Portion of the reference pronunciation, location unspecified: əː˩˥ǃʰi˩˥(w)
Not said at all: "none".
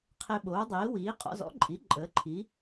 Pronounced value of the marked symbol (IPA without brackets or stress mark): none